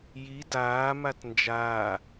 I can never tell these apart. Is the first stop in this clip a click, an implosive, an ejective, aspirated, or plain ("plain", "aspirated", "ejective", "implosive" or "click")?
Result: plain